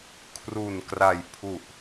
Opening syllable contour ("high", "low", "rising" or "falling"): low